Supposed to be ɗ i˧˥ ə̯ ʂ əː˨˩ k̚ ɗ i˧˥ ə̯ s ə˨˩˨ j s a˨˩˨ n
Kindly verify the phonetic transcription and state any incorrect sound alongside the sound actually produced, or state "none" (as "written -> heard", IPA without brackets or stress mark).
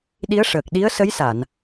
ə˨˩˨ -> ə˧˥